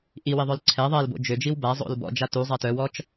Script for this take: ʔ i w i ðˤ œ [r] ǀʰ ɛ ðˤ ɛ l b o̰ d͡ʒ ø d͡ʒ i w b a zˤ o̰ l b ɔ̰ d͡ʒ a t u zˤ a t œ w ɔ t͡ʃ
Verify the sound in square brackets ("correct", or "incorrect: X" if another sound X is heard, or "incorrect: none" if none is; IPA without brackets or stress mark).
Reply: incorrect: l